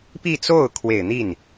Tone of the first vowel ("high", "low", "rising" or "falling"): falling